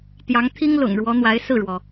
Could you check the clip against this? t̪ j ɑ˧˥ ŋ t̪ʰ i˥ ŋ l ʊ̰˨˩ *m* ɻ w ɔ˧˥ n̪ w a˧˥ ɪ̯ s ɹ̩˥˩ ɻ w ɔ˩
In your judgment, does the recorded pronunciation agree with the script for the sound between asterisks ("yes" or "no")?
no